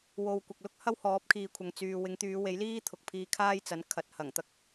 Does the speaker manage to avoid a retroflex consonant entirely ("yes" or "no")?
yes